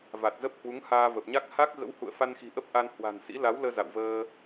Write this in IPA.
v a˨˩ t̚ z ə˦˥ p̚ h w u˨˦ ŋ h aː˧ v ə˨˩ p̚ ɲ a˦˥ k̚ h a˦˥ k̚ ɣ ə̰˧˥ w h ṵ˧˨ ə̯ f a˧ n x i̤˨˩ ʔ ə˦˥ p̚ ʔ a˧ n h w a̤˨˩ n s ḭ˧˥ l a˨˦ w l əː˧ z a̰˧˨ w v əː˧

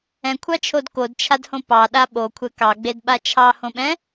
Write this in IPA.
ɛ̃ kʷʰ ɑ t͡ʃʰ o d k o d t͡ʃʰ a d h õ p ɑ ɗ a ɓ o kʷʰ ɛ k ɑ ɡ͡b e d ɓ a t͡ʃʰ ɑ h õ ɓ ɛ̃

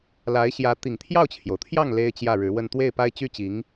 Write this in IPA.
l a˧˥ ɪ̯ ɕ j ä˧˥ t̪ i˨˩ ŋ t̪ʰ j ɑ˥˩ ʊ̯ t͡ɕʰ j o˩ ʊ̯ t̪ʰ j ɑ˥˩ ŋ l e˥ ɪ̯ t͡ɕ j ä˥˩ ɻ ɻ̩˧˥ w ə˥˧ n t̪ w e˥˩ ɪ̯ p a˥ ɪ̯ t͡ɕ y˥ t͡ɕ i˧˥ ŋ

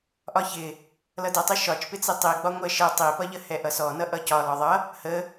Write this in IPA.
ʔ ɒ ç ɪ | l ʌ d ɛ tˤ ɪ ʃ ɒ t͡ʃ p ɪ t͡s i tˤ i ɡ͡b ɒ ŋʷ ɛ ʃ ə tˤ i p ʌ ʎ ə h ɛ ʔ ʌ s ɔ n ʌ ʔ ʌ c ɒ l ɒ ðˤ ʌ | h ə

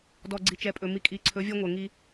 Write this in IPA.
d ɔ˨ ɡ͡ǀ i˨ t͡ʃ ɛ˨ pʼ ɵ˨ m i˨ kʼ i˨˦ ǀʰ ɵ˨˦ vʲ ɔ˦ ŋʷ ɛ˨ ŋ i˦

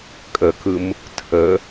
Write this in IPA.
kʼ ə k ɯ m | tʰ ə

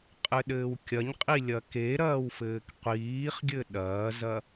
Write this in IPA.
qʼ ɘ ɗ ɘː w kʲ ɐ ɲ qʼ i lʲ ɐ k e ɾ ɐː w f ɘː k qʷ iː χ ɡʲ ɘ ɗ ɐː z ɐ

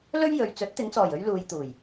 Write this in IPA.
l ɵ˥ ɥ j ɵ˨˧ ɥ t͡s ɵ˨˥ t̚ t̪ ɪ˨˧ ŋ t͡s ɔː˨˩ j ɵ˥ ɥ l uː˧ j t̪ uː˨˩ j

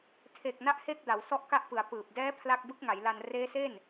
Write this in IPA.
tʰ e˨˩ k̚ n a˥˩ ʔ h e˥˩ k̚ d a˩˦ w s ɔ˥˩ ʔ k a˥˩ ʔ p ɯ˩˦ a̯ p ɯː˨˩ p̚ d ɛː˦˥ pʰ l a˥˩ k̚ b ɯ˦˥ k̚ ŋ a˩˦ j l a˧ n r eː˦˥ s e˥˩ n

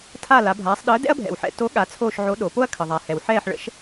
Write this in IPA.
tʰ a˦˨ l a˩˧ bʱ aː˩˧ sˤ ɗ əː˨˥ d ɛ̰˥ ɐ̯ bʱ ɛ̰˩ w ħ ɛ̰˦˨ t o˨˥ ɠ a˩˧ t͡sʰ oː˦˨ ʃ ʕ o˨˥ ɗ o˩˧ p o˥ ɐ̯ kʰ ə˩ ðˤ a˩ h ɛ˩ w ħ ɛː˦˨ ħ ɭ ə̰˨˥ ʃ

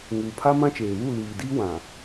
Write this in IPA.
ŋ uː˨ pʰ a˦ m ã˦ t͡ʃ eː˨ β u˦˨ l iː˨ d iː˦ w ã˨

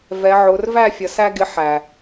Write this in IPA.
v ɛ˨˦ ʕ ʊ˨˦ r v æ˦˨ fʲ ʌ˨˦ s æ˦ ɡ ɪ˦ ħ æ˨

